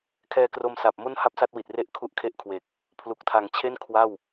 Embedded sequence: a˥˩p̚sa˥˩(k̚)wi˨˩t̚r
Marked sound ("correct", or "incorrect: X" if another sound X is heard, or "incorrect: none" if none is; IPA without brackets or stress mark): incorrect: t̚